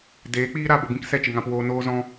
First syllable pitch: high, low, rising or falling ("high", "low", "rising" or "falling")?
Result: rising